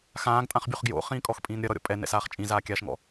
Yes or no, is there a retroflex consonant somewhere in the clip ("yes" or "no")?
no